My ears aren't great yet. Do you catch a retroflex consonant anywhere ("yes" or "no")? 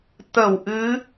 no